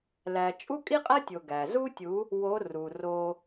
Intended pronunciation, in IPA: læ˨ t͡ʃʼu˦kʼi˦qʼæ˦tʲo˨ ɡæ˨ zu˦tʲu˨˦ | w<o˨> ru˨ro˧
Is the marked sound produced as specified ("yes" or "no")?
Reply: no